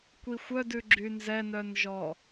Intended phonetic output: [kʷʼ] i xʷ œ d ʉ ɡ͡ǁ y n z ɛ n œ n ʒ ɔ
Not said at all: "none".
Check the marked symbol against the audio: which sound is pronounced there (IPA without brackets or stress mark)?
kʷ